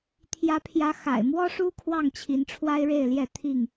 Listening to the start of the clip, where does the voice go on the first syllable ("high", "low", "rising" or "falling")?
rising